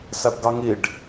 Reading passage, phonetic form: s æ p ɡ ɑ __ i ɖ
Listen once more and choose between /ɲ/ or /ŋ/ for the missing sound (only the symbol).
ŋ